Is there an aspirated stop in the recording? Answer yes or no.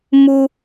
no